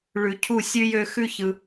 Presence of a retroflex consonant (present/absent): present